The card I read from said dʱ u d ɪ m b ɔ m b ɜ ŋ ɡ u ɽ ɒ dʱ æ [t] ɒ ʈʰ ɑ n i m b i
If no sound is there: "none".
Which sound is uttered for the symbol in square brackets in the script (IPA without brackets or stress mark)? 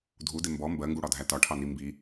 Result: t